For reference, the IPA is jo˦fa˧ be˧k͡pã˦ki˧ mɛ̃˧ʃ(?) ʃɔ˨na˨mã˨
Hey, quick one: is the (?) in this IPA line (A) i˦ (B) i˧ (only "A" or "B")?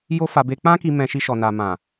B